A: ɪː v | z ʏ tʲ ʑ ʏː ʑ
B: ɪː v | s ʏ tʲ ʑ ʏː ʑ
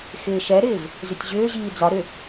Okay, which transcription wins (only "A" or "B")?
A